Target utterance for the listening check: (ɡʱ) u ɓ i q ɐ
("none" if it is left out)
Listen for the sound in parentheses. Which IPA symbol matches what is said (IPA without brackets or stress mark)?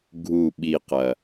ɡʱ